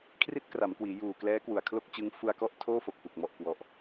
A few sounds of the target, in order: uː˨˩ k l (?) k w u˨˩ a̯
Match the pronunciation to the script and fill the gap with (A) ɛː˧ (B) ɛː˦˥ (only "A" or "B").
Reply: B